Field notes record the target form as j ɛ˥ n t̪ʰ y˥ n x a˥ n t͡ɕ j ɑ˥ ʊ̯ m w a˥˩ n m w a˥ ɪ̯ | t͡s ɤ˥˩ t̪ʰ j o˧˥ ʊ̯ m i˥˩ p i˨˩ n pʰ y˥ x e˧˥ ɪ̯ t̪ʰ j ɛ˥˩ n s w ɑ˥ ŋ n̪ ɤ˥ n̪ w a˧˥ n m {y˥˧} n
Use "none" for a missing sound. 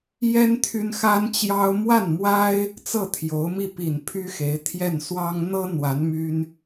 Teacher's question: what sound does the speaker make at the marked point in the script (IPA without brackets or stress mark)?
y˥